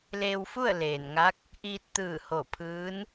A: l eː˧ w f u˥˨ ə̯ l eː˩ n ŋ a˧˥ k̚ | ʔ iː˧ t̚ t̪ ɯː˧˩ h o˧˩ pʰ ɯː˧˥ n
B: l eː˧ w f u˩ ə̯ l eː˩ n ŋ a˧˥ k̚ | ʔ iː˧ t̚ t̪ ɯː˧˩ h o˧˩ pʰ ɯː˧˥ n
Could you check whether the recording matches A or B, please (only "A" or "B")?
A